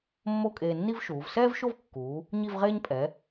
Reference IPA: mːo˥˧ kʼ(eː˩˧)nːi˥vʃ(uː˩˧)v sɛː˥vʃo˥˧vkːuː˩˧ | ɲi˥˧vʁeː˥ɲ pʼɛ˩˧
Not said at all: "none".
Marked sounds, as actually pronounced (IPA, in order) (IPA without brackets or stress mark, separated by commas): eː˧, uː˩˧